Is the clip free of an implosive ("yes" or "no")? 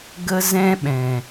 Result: no